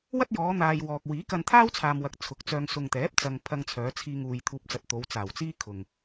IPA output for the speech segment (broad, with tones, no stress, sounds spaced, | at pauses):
w ɐ˥ t̚ j ɔː˨˧ n̪ aː˨ j w ɔː˨ k̚ w iː˨˥ k ɐ˧ n t̪ʰ aː˥ w t͡sʰ aː˨ m w ɐ˨ k̚ t͡sʰ ʊ˨˥ k̚ t͡s œː˧ ŋ s ʊ˨ ŋ t̪ ɛː˨˥ p̚ t͡s ɐ˨ ŋ pʰ ɐ˧ ŋ t͡sʰ œː˨˧ t͡sʰ iː˧ ŋ uː˧ j t̪ʰ uː˧ p̚ t͡s ɐ˧ t̚ t̪ o˨˧ w t͡s aː˨˩ w t͡s iː˥ kʰ ʊ˨ ŋ